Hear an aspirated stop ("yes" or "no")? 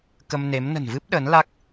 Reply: no